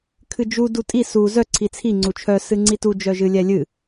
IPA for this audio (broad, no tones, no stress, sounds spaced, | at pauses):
kʰ ɨ d͡ʒ u d u tʼ i s u z œ ǀʰ i t͡sʰ i ŋ͡ǀ u t͡ʃʰ œ s ɨ ŋ͡ǀ i t u d͡ʒ œ ʒ ɨ lʲ ɛ lʲ ɨ